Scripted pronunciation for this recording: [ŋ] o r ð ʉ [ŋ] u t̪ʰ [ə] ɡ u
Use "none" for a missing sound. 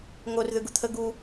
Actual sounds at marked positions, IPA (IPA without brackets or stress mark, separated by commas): ŋ, ɡ, ə